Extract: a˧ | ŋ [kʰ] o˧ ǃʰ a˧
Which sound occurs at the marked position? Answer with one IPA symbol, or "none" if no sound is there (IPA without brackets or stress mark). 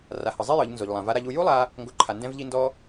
ɡ